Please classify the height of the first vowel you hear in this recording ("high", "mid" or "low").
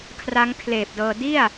low